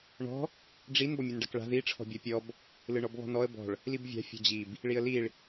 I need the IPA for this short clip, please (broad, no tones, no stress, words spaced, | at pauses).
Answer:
ɳɔ̤ | ɖ͡ʐin bɔmʲɯnɖakɭa̤ ði ʈ͡ʂʰɔ̤bʲɔpʲɔb | lɯɳɔbβɔ̤nɔə̯ bɔ̤ɭ | libvʲa̤ fʲɔ̤d͡ʑib | ɭiə̯liɭ